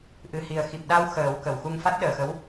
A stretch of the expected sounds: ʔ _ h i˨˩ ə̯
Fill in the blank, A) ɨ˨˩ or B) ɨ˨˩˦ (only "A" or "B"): A